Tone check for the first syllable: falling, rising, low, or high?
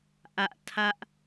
falling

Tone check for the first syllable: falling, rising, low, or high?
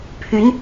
rising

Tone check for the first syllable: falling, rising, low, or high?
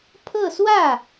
falling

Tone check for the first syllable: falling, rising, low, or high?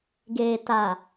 low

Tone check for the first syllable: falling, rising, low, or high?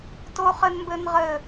high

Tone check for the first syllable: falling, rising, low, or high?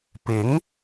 rising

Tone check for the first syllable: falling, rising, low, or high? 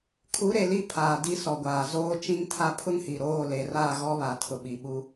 rising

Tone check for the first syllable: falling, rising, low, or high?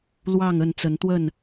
falling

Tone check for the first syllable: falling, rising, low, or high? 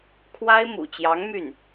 high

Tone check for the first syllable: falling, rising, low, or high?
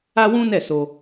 high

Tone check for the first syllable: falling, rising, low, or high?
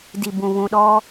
low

